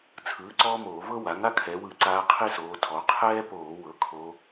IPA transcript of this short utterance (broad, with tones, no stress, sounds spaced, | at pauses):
t͡sʰ ɯː˩˥ ǀ ɔː˥ m oː˧˩˧ v ɤ˥ w a˩˥ ŋ a˥ kʰ ɛ˩˧ w ɯ˧˩˧ ǀ aː˧˥ qʰ i˥ s oː˩˧ tʰ ɔ˩˧ qʰ ɛː˥ p oː˧˩˧ w ɤ˩˥ kʰ o˧˥